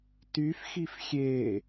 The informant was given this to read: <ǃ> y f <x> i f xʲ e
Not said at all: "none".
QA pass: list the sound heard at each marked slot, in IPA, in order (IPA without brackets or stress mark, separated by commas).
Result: t, x